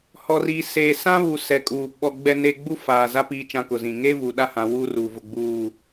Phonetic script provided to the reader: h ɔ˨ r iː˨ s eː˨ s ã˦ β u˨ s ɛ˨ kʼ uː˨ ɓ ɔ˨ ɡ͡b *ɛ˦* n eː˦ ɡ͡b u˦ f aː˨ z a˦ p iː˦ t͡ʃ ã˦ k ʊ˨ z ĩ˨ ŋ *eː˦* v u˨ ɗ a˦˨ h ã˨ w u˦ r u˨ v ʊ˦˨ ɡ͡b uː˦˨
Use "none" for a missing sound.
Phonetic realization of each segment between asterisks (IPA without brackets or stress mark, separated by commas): ɛ˦, eː˦